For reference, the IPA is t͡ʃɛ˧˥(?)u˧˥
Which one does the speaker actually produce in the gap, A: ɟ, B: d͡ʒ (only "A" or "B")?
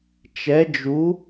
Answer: B